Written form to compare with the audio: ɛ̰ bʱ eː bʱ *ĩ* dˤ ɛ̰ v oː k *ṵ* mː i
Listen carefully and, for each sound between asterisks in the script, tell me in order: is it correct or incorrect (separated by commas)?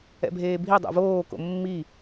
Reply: incorrect, incorrect